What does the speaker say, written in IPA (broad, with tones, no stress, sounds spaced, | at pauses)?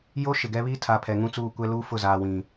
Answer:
j o˦ ʃ ɪ˨ ɡ ɛ˦ β i˦ tʰ a˨ pʰ ɛ˨ ŋ ũ˦ t͡s uː˦˨ kʷ ɛ˦ l uː˦ f ʊ˦˨ z aː˨ w ĩ˨